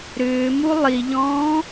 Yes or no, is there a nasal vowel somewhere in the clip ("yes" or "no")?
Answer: yes